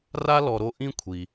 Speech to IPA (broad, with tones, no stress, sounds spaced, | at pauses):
r a˥ l ɔ˨ ɾ o˦ ʔ ĩ˥ kʷʰ i˩